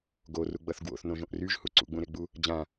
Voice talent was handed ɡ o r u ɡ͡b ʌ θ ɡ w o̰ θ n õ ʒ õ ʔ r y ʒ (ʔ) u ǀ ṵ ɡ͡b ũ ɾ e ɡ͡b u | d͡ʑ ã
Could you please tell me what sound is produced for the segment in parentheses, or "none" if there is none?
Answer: h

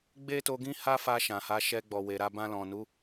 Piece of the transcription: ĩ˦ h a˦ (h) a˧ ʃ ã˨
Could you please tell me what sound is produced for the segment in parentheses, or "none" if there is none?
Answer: f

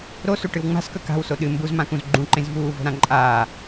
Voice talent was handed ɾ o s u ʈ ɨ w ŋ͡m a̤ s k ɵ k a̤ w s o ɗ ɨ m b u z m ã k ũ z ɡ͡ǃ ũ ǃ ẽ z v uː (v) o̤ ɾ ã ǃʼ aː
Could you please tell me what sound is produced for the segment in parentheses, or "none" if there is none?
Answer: v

